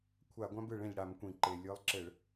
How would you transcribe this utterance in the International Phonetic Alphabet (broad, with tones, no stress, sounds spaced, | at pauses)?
kʷʰ a˧˩˧ ɡʷ ã˦ b ɯ˧˩˧ ɭ ẽ˩ ʎ ɽ a˧˩˧ m kʷ ĩ˩ ǃ e˩ lʲ ɯ˨˦ lˠ ǁ ɘ˧˩˧ ɭ